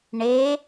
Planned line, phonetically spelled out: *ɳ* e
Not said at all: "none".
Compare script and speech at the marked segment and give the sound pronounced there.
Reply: ɳ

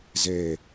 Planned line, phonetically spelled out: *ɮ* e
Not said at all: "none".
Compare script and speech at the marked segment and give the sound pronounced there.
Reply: z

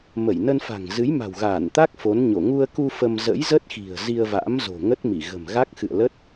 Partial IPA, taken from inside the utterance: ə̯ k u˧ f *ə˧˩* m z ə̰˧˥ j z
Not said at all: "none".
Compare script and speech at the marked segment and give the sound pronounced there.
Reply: ə˧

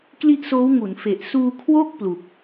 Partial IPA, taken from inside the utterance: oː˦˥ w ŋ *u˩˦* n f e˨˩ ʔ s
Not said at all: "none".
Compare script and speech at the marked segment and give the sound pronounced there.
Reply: u˩˦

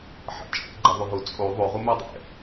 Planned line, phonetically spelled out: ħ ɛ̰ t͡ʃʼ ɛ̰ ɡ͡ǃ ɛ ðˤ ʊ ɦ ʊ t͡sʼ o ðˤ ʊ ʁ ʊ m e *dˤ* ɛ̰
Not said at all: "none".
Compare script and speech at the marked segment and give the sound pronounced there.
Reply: dˤ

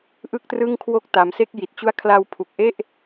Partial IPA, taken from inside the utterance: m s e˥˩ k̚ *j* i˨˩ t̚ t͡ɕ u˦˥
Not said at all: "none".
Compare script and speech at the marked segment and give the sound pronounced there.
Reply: j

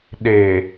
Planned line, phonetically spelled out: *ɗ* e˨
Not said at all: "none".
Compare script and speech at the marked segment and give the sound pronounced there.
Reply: ɗ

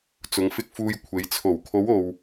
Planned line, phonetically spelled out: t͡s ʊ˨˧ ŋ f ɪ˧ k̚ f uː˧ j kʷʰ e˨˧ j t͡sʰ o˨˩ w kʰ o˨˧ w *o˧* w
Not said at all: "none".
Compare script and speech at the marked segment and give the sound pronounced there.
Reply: o˧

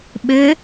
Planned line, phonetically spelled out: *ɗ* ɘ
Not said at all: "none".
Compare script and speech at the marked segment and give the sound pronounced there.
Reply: ɓ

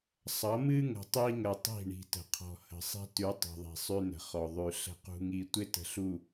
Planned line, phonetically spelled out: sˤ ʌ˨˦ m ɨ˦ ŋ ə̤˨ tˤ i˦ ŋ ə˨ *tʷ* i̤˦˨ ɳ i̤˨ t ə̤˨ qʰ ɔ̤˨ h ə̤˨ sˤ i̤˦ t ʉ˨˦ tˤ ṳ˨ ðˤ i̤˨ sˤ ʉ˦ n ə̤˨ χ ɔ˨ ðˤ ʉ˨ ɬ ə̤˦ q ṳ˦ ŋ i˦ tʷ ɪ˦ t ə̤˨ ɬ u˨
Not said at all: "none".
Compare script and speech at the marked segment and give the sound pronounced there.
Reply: tˤ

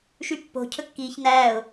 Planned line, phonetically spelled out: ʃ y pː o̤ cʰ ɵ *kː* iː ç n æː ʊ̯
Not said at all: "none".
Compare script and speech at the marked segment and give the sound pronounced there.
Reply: kː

